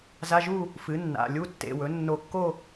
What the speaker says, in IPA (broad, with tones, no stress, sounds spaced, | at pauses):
z a˧˥˧ ʒ u˥˧ | f ɨ˩˥ nː a̰˩˧˩ lʲ u˧˥˧ tː ḛ˩˧˩ w ɵ˩˥ nː o˧˩ kː o˥˧